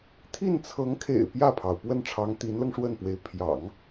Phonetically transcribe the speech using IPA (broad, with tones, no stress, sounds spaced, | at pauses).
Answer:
t̪ʰ i˥˩ n t͡sʰ ɤ˧˥ ŋ kʰ ḛ˨˩ ɪ̯ p j ä˥˩ pʰ ɑ˩ ʊ̯ p w ə˥˩ n ʈ͡ʂʰ ɑ˧˥ ŋ t̪ i˧˥ n l ɤ˧ ŋ ʂ w ə˥˩ n p w e˧˥ ɪ̯ pʰ j ɑ̰˨˩˦ ŋ